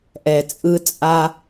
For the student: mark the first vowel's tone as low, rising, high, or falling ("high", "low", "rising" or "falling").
low